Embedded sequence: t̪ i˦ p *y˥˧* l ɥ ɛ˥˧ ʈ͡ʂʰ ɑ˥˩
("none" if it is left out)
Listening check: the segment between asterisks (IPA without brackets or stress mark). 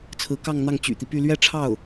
y˥˧